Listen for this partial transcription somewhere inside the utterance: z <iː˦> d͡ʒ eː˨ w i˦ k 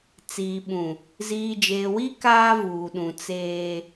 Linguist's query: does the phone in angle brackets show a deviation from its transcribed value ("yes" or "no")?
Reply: yes